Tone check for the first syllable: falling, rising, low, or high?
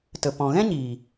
low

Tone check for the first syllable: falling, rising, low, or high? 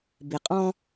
low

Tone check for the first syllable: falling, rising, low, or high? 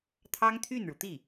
high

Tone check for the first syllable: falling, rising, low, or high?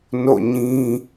falling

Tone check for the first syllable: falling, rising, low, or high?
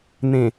low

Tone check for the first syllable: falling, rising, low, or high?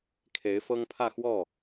rising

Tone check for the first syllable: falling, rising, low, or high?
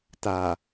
low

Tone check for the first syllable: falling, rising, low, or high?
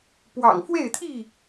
low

